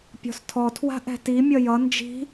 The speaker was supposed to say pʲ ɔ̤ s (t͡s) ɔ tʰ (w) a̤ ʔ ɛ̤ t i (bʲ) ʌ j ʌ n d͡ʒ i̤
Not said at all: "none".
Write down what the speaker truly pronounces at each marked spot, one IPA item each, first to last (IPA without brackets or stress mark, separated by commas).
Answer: tʰ, w, mʲ